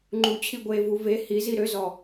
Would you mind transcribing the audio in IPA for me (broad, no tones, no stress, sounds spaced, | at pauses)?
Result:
ŋ͡ǃ u t͡ɕʰ i ɡʷ e v u v e h i z i ɾ ø z ɔ